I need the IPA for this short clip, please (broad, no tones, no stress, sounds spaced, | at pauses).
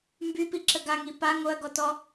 m b y p i ǁ ə ɡ a ŋ i p a ŋ o ɐ̯ ɡ ɔ t ɔ